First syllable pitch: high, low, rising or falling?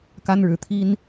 high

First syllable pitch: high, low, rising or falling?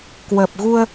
low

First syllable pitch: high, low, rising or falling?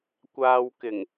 low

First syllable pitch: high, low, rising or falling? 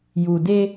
low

